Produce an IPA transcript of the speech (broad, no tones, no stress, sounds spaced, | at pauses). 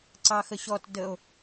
ǀ ɑ x ə ɕ ɔ t d ə o̯